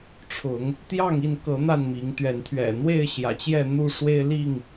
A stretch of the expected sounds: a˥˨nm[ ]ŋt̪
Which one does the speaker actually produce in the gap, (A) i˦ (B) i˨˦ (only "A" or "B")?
B